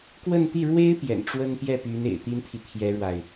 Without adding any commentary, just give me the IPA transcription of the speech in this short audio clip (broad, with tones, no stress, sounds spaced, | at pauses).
k w ə˥˧ n t̪ i˥˩ ɻ w e˥ ɪ̯ p j ɛ̰˨˩ n ʈ͡ʂ w ə˥ n p j ɛ˥˩ p y˧˥ n ḛ˨˩ ɪ̯ t̪ i˥ n t̪ʰ i˨ t̪ʰ j ɛ˥ ɻ w a˨ ɪ̯